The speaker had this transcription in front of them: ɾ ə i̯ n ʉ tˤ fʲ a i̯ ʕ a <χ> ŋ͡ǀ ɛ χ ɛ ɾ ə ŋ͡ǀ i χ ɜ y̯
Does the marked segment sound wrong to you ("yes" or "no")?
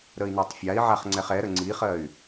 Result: no